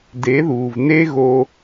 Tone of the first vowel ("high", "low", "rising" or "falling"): rising